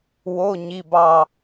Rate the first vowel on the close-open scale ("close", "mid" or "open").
mid